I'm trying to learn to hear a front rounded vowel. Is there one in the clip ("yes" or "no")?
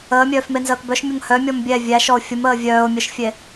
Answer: yes